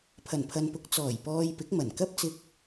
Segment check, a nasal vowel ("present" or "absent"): absent